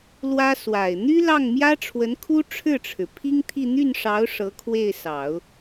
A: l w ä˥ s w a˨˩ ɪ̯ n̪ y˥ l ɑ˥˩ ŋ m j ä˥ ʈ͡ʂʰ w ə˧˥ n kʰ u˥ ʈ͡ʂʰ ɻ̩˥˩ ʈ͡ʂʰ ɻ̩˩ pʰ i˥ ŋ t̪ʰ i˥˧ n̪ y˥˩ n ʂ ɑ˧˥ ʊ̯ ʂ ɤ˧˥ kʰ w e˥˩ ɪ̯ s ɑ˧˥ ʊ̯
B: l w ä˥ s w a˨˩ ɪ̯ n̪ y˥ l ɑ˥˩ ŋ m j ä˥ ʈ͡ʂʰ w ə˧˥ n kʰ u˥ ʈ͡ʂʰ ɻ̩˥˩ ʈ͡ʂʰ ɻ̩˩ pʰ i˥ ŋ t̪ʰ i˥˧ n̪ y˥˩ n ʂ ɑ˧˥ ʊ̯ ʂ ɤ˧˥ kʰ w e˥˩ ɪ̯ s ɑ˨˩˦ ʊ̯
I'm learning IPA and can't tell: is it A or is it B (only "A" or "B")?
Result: B